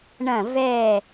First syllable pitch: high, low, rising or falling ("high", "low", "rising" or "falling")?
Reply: falling